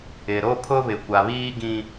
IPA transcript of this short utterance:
ɪ˨ ɾ o˦ pʰ ʊ˦ β ɪ˨ kʷ a˨ β iː˦ ɡ ĩ˦

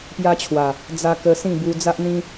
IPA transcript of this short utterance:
p j a˦ t͡ɕʰ w a˨˩ | d͡z a˧ k ə˧ s ĩ˥˧ b u˧ d͡z a˦ ʔ n̪ ĩ˦

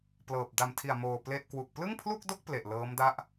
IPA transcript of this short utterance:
p l ɤː˨˩ p̚ d a˨˩ m tʰ i˨˩ a̯ m oː˧ p l e˥˩ ʔ k w u˨˩ k̚ p l ɯ˥˩ ŋ pʰ l u˥˩ k̚ d o˥˩ k̚ p l e˨˩ ʔ l ɤː˦˥ m d a˥˩ ʔ

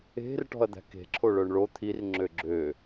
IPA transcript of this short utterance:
e̤ r ʈ ɔ̤ ɐ̯ d̪ æ̤ k e̤ ǁʰ o ɭ œ ɳ ɭ o t̪ʰ i r ŋ͡ǁ ø ɡ͡ǁ ø

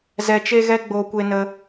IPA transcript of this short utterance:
z ɛ˧ t͡ʃ e˦ ɣ ɛ˦ ɡ͡b oː˧ kʷ e˧ n ə˧

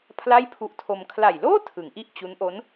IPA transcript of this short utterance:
pʰ l a˥˩ j pʰ u˦˥ ʔ tʰ o˧ m kʰ l a˨˩ j l oː˥˩ tʰ ɯ˩˦ ŋ ʔ i˥˩ ʔ t͡ɕ u˦˥ n ʔ o˦˥ n

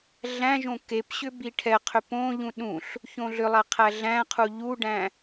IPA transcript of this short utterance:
ɮ æ̃ ʒ õ k e p ɕ ʏ b i ʈʰ ɛ qʰ ʏ p õ ʎ ũ ɗ ũ ɬ | ç õ ɮ ʏ lˠ æ qʰ æ ɮ æ̃ qʰ u ʎ u ɖ æ̃

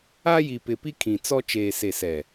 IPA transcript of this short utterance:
a˦ j i˨ p ɪ˨ p i˦ kʰ ĩ˨ t͡s ɔ˦ t͡ʃ eː˨ s e˨ s ɛ˨

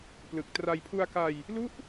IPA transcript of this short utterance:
p l ɯ˨˩ k̚ t r a˧ j pʰ u˧ a̯ k a˧ j | l u˦˥ ʔ

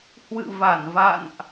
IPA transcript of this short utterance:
h w ɨ̰˧˨ v a˧˩ n v a̰˧˨ n ʔ

